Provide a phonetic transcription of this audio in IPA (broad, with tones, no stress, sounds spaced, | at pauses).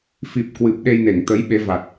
f i˨˩ p̚ k w ɨ˨˩ p̚ ɗ e˧ j n e˧˩ ŋ t̪ ə˨˦ j ɓ e˨˦ v a˨˩ t̚